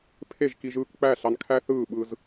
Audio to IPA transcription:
pʰ e˦˨ ʒ k i˧ ʒ ɯː˧ k k͡p æ˦˨ ɬ ɑ˧ n kʰ æ˦ θ ɯː˦˨ ɓ ɯ˧ z

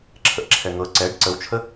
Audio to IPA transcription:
ǁʰ ə ʔ ǁʰ ɛ ŋ ɤ ǀ ɛ ɖ ǀ ə w t͡ʃʰ ə

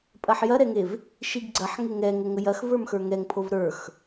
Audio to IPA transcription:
pʼ ɐ ħ j ɐ ɾ ɛ ŋ e v | ʃ i ɡ ɡ͡ǀ ɐ ħ ŋ e ŋ ɛ ŋ ə ŋ ə j ɐ x v ə˞ m x ə˞ ŋ ɛ ŋ pʰ o v ɾ ə˞ x

